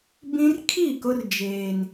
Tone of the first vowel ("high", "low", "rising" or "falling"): high